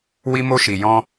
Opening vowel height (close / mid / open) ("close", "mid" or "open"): close